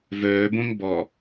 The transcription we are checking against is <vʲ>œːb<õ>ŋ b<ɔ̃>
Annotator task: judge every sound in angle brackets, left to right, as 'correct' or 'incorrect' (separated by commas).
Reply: incorrect, correct, incorrect